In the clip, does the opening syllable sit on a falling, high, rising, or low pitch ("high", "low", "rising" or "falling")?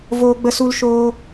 high